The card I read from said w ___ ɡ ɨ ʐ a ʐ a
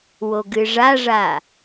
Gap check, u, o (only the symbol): o